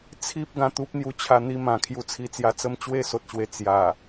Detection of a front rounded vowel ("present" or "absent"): absent